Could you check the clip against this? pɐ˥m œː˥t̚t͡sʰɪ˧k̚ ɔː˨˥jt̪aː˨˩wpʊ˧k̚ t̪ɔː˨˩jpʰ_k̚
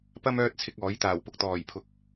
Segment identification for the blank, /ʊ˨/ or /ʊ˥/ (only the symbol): ʊ˨